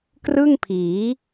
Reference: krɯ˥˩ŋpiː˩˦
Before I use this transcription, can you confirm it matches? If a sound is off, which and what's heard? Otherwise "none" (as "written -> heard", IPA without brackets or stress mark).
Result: p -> pʰ